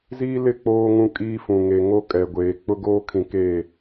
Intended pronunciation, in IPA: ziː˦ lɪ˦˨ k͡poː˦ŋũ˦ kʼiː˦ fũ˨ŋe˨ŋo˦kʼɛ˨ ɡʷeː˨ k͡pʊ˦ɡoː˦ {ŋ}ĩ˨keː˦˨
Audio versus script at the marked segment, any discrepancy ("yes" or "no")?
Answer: yes